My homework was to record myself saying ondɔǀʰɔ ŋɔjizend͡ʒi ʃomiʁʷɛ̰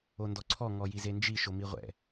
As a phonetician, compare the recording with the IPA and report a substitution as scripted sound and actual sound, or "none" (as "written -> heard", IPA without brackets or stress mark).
none